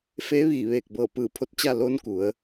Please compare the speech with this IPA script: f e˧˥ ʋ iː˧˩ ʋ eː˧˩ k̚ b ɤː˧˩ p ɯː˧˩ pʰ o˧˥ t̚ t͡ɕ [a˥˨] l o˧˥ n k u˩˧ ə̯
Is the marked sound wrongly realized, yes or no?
no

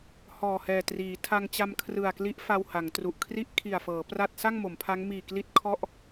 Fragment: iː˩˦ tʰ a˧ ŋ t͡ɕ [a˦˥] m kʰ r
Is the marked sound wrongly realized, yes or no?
yes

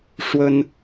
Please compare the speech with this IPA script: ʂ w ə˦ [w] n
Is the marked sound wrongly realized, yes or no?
yes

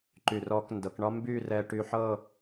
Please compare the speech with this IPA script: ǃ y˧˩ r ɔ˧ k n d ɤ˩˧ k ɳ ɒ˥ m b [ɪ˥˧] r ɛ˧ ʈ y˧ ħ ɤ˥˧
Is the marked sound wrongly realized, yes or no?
yes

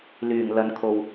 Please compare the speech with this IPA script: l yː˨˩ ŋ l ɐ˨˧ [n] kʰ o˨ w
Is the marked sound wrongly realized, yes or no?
no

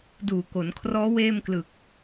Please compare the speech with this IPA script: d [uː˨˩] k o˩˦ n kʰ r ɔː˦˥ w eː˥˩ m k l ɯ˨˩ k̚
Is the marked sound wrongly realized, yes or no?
no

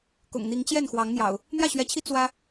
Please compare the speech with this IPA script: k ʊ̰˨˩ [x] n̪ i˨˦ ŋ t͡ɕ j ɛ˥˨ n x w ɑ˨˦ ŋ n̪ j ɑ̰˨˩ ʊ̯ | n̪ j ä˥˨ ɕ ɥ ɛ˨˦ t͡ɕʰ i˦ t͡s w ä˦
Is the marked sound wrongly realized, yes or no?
yes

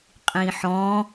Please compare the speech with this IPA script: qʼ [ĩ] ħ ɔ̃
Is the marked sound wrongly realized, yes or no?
no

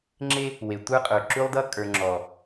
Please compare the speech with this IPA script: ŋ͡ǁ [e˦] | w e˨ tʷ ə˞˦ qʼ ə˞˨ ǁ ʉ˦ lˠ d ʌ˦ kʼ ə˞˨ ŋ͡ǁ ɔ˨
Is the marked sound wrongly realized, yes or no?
no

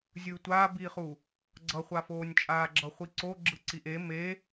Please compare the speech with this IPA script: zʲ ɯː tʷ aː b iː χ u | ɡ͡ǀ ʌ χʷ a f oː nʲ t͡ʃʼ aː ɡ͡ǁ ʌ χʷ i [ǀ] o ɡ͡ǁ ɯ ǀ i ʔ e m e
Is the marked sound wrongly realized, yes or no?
no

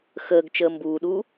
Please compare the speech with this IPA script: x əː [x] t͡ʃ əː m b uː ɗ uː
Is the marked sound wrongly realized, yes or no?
yes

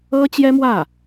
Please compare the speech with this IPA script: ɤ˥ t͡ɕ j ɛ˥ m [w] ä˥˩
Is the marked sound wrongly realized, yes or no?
no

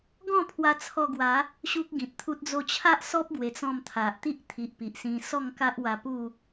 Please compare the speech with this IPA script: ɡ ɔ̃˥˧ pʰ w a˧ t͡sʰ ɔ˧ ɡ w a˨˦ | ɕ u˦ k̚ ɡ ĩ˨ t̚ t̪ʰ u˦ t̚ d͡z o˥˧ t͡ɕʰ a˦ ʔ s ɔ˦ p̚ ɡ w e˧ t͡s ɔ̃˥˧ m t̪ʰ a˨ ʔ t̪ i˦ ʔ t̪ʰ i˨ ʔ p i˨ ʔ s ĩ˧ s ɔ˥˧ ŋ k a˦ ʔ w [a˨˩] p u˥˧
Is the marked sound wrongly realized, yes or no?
yes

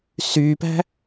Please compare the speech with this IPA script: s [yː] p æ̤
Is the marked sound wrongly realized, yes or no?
no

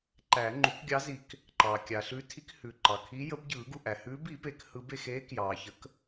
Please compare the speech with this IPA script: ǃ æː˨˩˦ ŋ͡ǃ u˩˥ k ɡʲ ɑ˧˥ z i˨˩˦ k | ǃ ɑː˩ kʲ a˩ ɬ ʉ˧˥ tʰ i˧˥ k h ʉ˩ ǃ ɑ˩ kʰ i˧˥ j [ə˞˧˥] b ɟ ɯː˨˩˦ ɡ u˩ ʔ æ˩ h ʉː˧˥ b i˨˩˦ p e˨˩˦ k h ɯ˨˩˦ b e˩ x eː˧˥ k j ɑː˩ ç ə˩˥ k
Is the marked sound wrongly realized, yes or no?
yes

